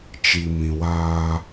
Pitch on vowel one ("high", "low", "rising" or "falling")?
low